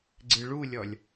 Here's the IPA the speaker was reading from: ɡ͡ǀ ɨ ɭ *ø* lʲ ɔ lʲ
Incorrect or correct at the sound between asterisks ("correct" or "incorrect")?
incorrect